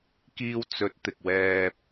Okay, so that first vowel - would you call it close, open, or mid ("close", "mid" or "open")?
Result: close